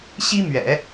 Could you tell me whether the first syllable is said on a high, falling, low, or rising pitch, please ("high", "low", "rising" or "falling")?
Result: high